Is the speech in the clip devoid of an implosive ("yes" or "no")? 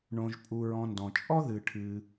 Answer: yes